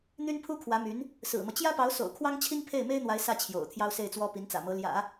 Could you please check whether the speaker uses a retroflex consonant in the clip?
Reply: no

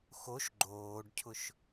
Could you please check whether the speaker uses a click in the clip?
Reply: yes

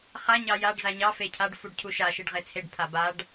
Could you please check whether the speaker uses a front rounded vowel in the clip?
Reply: no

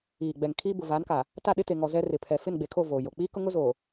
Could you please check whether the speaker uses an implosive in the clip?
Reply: yes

